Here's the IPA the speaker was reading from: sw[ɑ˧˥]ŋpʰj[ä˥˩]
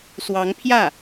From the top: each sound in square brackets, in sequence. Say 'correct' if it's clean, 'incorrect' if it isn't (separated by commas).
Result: correct, correct